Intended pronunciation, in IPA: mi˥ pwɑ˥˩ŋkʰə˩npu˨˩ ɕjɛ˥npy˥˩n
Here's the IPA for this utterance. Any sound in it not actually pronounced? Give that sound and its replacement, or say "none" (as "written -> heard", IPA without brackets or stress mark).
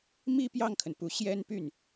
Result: w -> j